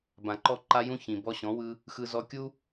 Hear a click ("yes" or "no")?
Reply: yes